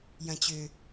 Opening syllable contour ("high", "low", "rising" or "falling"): low